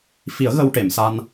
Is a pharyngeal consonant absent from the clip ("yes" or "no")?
yes